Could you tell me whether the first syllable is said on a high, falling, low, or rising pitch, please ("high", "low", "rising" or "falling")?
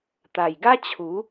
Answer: low